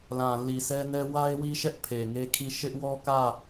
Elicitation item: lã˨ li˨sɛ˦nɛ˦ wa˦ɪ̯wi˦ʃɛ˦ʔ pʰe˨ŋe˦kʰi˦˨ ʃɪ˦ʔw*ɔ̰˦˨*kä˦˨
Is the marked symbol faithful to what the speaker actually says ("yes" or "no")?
no